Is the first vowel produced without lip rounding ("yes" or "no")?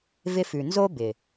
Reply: yes